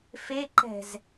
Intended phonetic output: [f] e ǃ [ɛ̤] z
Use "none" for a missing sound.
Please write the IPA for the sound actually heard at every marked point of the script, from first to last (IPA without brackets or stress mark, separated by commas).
f, ɛ̤